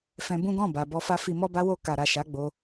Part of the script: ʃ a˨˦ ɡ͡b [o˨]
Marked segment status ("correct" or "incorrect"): incorrect